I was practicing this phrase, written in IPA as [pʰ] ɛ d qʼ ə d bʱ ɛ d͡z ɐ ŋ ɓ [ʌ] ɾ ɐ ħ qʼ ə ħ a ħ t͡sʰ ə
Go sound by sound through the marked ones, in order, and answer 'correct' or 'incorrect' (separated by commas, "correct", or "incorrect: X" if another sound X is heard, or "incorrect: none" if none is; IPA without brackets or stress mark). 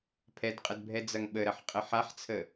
correct, incorrect: ə